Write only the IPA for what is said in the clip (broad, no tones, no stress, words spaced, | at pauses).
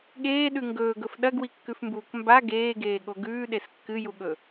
ɠeːɗʉ ŋɡɵːɡɵf ɗɐɡwikːʉfmbuːk mba ɡeːɡeːɠo ɡʉːɗes kːɨjuɠɵ